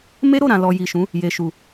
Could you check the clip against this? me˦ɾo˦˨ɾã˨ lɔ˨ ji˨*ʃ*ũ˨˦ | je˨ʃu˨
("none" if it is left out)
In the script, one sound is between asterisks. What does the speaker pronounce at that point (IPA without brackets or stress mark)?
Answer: ʃ